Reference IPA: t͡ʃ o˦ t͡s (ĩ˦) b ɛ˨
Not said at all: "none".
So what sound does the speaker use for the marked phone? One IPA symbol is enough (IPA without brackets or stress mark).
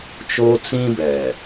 ĩ˦